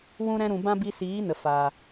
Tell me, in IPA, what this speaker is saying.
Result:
w ũ˦ ɾ ɛ̃˧ ɾ ũ˨ b ã˦ b i˧ s iː˨˦ n ə˨ f aː˨

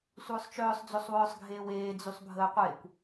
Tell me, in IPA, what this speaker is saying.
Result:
sʷ œː sˤ t͡ʃ œː sˤ d͡z ø sˤ w œː sˤ ɡʱ eː w eː d͡z y sˤ bʱ əː qʷ e kʷ

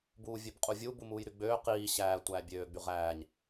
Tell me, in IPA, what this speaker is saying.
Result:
b uː vʲ ø b qʼ u vʲ u b u m uː j ɾ y ɡ͡b øː q iː ɕ æː tʷ æː bʲ øː ɡ͡b y ʁ æː ɲ

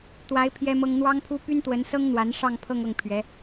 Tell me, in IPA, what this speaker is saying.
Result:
t̪ w a˧˥ ɪ̯ pʰ j ɛ˥ m ɤ˥ ŋ n̪ w ɑ˥ ŋ pʰ u˥ p y˥ n t̪ w ə˧˥ n s ɤ˥ ŋ n̪ w a˧˥ n ʂ ɑ˥˧ ŋ pʰ ɤ˥˧ ŋ ɤ˥˩ ŋ pʰ ɥ ɛ˧˥

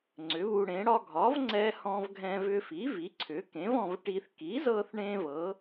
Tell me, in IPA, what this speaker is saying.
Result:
ŋ͡ǀ ʏ˩˥ β u˧ ɽ ẽ˩˥ ɽ ɒ˧ ɡʱ ɒ˩˥ v ŋ͡ǀ ɛ˧ h ɔ̃˧ v ɡʱ ɛ̃˧ v ʏ˧ f i˩˥ v i˩˥ ǀʰ ʏ˩˥ k ẽ˩˥ v ɔ̃˧ v ʈ i˧ θ k i˩˥ z ɤ˧ θ ɳ ẽ˧ v ɤ˩˥

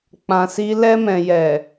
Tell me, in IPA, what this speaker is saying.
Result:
k͡p ã˧ s i˦ l ɛ˧ m ɛ̃˨ j ɛ˨

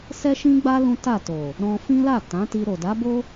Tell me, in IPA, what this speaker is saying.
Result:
s ɛ˦ ʃ ĩ˦ ɡ͡b a˦ l ũ˦ t a˦˨ t o˨ | ɾ ɔ̃˧ f ĩ˦ l a˦˨ t ã˨˦ t i˧ ɾ o˨ d a˨˦ b o˦

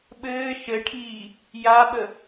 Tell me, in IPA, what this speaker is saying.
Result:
ɓ ɘː ʃ ɘ ʈʰ iː | j a ɓ ə

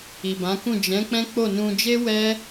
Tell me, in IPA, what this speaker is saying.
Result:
i˨ b ã˨˦ k ũ˦˨ d͡ʒ ɛ̃˨˦ k͡p ɛ̃˦ k͡p o˦˨ n ũ˧ d͡ʒ e˦ w ɛ˦

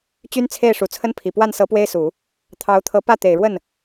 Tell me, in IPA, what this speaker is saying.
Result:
t͡ɕ y˥ n t͡sʰ e˥˩ ɪ̯ ʂ u˨˩ t͡sʰ ə˥ n pʰ i˨˩ p w a˥˩ n s ɤ˧˥ p w e˥ ɪ̯ s u˨˩˦ | t̪ʰ ɑ˧˥ ʊ̯ t̪ʰ ɤ˧˥ p ä˥˩ t̪ e˨˩ ɪ̯ ɻ w ə˥˩ n

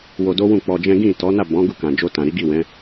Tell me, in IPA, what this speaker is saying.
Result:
w o˧ d o˦ w ũ˦˨ k͡p ɔ˧ d͡ʒ ɛ̃˦ ɡ ĩ˦˨ t ɔ˨˦ n a˦˨ b ɔ̃˨˦ ɡ u˦˨ k ã˨ d͡ʒ o˧ t ã˨ ɾ i˨˦ ɡ i˦˨ w ɛ̃˨˦

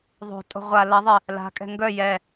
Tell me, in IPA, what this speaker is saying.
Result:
ðˤ o̤ tʼ o̤ ʁʷ a l ɐ ðˤ ɪ | l a̤ kʼ ɛ̤ ŋ ɡ œ j ɛ

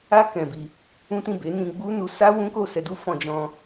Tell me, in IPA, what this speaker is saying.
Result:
a˦ k ɛ̃˧ b i˧ | ũ˦ t ĩ˦˨ b e˨˦ n ĩ˧ ɡ͡b u˦ n u˧ s a˦ w ũ˦ k o˦˨ s ɛ˧ d u˦ f ɔ̃˧ d͡ʒ ɔ̃˧

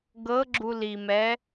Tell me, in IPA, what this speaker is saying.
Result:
ɡ ɤ ɡ͡ǁ u l i m ɛ

